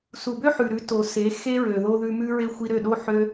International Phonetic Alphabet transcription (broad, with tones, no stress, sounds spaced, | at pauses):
s u˨ b ø˦ ħ ʉ˨ ɾ ʉ˨˦ t o˨ s e˨˦ x e˦ ɹ ø˨ ð o˧ ð ʉ˧ m ʉ˧ ɹ e˧ xʷ i˧ ɾ ø˦˨ ɗ o˦ ħ ø˧